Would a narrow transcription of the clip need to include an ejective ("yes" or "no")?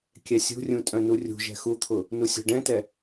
yes